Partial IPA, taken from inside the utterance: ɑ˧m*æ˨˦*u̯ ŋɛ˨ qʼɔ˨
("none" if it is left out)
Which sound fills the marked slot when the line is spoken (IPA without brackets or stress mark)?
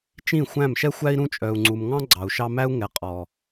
æ˦